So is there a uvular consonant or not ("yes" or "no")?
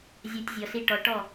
no